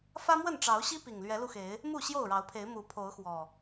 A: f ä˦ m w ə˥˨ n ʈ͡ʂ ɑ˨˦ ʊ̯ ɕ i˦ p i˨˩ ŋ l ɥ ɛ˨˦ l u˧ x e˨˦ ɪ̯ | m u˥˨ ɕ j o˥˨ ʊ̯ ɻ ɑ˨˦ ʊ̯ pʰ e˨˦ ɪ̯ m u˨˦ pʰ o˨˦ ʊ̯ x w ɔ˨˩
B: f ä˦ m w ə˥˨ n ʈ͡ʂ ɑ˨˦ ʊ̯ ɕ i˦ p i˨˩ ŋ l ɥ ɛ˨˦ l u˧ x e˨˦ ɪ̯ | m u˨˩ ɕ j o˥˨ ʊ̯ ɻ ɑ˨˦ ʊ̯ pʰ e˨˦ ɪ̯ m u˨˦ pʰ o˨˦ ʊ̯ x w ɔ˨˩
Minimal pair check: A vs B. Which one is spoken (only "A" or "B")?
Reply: A